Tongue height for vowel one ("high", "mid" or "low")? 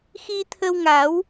high